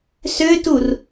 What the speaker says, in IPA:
s ø t u r

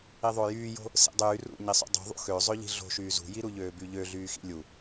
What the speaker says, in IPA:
i ðˤ o j yː j o̤ | s ḭ dˤ yː r ṵ ɲ i sˤ ṵ dˤ ṳ ðˤ ṵ x ø zˤ ø ʎ i̤ ɮ o̤ ʃ yː z ṳ j i ɾ u ʎ øː b y ʎ ø ɮ yː x ḭ lʲ u

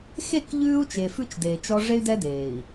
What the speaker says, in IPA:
x e˦˨ k ʎ ʉː˦ u̯ t͡ʃ e˨ f ʉ˦ t͡ʃ d eː˨ t͡ʃ ɔ˦ ʐ e˦ y̯ d ɛ˦ d eː˨ i̯

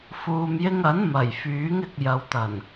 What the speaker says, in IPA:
f uː˨ m j ɪ˧ ŋ ɐ˨˥ n m ɐ˨˩ j f yː˨˥ ŋ ɪ˨ k̚ j ɐ˨˧ w t̪ ɐ˨˩ n

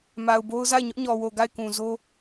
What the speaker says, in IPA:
m a˨ ʊ̯ b o˦ ʊ̯ z a˦˨ ɪ̯ ɲ ʊ˦ ʔ ɲ ɔ˨ w o˨ ɡ a˦˨ ɪ̯ k ũ˨ z o˦

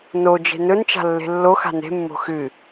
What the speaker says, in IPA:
n o d͡ʒ e̤ n ɵ n t͡ʃ a̤ lː e̤ lː o x a̤ n e̤ mː o̤ x ɨ

